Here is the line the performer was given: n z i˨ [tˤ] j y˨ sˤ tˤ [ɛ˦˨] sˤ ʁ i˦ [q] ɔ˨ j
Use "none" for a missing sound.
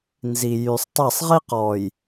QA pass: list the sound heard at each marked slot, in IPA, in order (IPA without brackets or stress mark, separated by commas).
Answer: none, ɛ˦˨, q